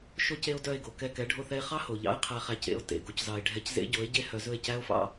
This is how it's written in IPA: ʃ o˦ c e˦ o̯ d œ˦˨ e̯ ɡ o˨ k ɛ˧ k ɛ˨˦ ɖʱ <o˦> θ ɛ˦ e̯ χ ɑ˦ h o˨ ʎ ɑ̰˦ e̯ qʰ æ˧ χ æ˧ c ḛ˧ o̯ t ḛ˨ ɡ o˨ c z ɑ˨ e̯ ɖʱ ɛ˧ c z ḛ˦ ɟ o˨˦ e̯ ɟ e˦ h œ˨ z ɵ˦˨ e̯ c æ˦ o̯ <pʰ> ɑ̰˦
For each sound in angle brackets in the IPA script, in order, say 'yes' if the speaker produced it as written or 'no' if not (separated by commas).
yes, no